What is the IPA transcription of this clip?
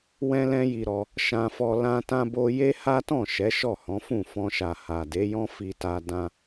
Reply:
w ɛ̃˦ l ɛ̃˦ j i˧ ɾ ɔ˧ | ʃ ã˧ f ɔ˧ l ã˧ t ã˧ b o˧ j e˦ h a˦ t ɔ̃˦˨ ʃ ɛ˨˦ ʃ ɔ˦˨ h ɔ̃˨˦ f ũ˦˨ f ɔ̃˧ ʃ a˨ h a˨ d e˨˦ j ɔ̃˦ f i˧ t a˧ d ã˧

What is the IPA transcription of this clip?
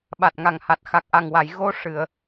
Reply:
ɓ a˨˩ t̚ ŋ a˨˩ ŋ h a˨˩ t̚ x a˨˩ k̚ ʔ a˨˩ ŋ w a˨˩˨ j ɣ o˧ ʂ ɨ˨˩˨ ə̯

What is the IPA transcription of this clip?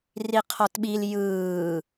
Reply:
r i qʰ ɔ t ɓ i l j ɯː

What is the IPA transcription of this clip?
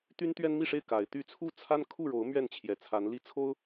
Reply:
t̪ y˦ n t̪ ɥ ɛ˦ n m i˥˨ ʂ e˥˨ ɪ̯ k a˨˦ ɪ̯ t̪ y˥˨ t͡sʰ u˥˨ t͡sʰ a˦ n kʰ u˥˨ ɻ o˨˦ ʊ̯ m ɥ ɛ˥˨ n t͡ɕʰ j ɛ˨˩ t͡sʰ a˨˦ n l i˦ t͡sʰ o˦ ʊ̯

